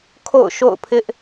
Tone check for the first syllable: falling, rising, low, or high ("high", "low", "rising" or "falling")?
falling